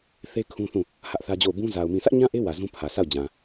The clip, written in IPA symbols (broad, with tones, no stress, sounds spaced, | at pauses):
θ e˦ kʰ ũ˦ θ ũ˦˨ | h ä˦ ʔ θ ä˦ d͡ʑ o˦˨ ʊ̯ b ũ˦ z a˨ ʊ̯ m ĩ˨ s ä˦ ʔ ɲ ã˦ ʔ e˦ w ä˨ z ũ˦ pʰ ä˨ sʰ a˦˨ ʊ̯ d͡ʑ ã˨